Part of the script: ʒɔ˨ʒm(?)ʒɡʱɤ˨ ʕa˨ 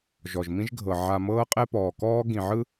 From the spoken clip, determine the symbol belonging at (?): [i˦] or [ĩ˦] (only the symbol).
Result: ĩ˦